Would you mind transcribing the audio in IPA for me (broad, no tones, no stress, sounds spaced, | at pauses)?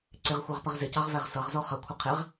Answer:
ǀ ɪ ʁ xʷ ɑ ʁ p ə ʁ z ɪ c ɑ ʁ v æ ʁ s ʌ ʁ z ɔ χ ʌ kʷʰ ɪ qʰ ɪ ʁ